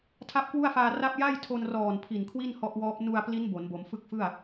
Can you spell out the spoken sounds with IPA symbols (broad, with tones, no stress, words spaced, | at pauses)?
tʰa˦˥p̚kwu˥˩a̯faː˧ ra˥˩p̚ ja˥˩jtʰo˧nrɔː˨˩n pʰi˨˩nkʰwi˥˩n hɔ˦˥ʔwɔː˦˥p̚ nu˧a̯pli˦˥n bo˩˦nbo˩˦mfɯ˥˩k̚ fɯ˥˩a̯